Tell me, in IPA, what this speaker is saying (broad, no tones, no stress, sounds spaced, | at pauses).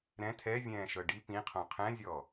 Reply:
ɾ ɛ̃ tʰ ɛ vʲ ɛ̃ː ʃ ɤ ɖ i p ĩ qʰ õ qʰ ɛ̃ zʲ ɔ